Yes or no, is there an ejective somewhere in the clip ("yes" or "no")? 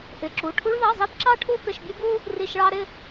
no